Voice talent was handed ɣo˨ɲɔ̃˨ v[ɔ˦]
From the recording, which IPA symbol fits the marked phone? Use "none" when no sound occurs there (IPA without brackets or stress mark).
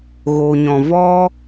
ɔ˦